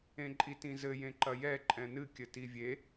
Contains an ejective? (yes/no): yes